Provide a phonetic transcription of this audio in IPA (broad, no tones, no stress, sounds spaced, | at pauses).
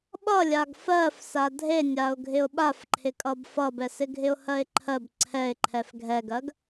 ɓ ʌ lʲ a ɡ f ɜ f s a dʱ e nʲ a ʊ̯ ɡʱ ɪ ʊ̯ ɓ a f ǃʰ ɪ kʼ ʌ b f ʌ b ɛ s ɪ ɡʱ ɪ ʊ̯ h ɜ ɪ̯ ǃʰ ɜ b ǀʰ ɛ ɪ̯ ǃʰ ɛ f ɡʱ ɛ ɡ ɜ ɡ